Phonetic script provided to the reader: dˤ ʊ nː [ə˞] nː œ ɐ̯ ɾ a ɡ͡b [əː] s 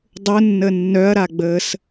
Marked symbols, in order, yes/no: no, yes

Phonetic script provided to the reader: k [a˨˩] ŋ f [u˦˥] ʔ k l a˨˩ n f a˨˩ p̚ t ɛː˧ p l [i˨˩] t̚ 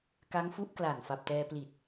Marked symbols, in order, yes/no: no, yes, yes

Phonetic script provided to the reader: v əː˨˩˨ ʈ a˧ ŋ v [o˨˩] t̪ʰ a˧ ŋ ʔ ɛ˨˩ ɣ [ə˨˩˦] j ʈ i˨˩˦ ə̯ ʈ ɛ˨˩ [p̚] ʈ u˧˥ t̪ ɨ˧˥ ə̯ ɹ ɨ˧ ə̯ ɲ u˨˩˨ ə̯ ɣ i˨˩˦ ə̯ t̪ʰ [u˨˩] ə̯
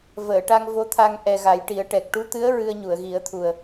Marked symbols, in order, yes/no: no, no, no, yes

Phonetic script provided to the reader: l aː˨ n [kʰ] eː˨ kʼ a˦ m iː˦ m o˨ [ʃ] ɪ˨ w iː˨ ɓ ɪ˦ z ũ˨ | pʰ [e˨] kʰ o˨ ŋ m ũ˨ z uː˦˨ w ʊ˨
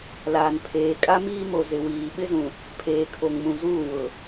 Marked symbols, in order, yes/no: no, no, no

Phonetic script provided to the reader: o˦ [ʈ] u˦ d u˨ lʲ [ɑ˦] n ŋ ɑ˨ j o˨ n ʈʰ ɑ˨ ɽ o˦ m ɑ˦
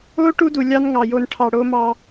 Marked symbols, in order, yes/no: yes, yes

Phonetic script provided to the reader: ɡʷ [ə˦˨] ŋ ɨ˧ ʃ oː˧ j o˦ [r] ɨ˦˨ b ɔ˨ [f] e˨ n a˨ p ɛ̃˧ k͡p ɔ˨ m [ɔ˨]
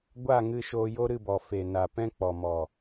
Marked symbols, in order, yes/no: no, no, yes, yes

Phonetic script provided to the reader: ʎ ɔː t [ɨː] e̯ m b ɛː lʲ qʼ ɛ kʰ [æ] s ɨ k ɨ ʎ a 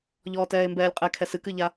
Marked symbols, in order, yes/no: no, no

